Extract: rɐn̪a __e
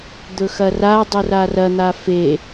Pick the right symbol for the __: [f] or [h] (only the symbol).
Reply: f